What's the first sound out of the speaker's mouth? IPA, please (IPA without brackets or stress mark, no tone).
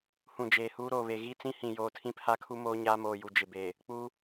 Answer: h